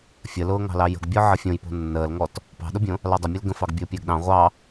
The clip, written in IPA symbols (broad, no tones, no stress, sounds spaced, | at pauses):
fʲ ə l ʊː ŋ ɑ̤ l ɑ j ə̤ ɡ bʲ ɔ ʕ ə fʲ õ j p o̤ nː əː l ŋ ɔ t | p ɑ̤ ɗ ʊ bʲ õ | l ɑ dˤ ə mʲ ʊ l ɡ ə̃ f ɑ ɡ bʲ ʊː pʲ əː ɡ ɗ ɑ̃ ʁʷ ɑ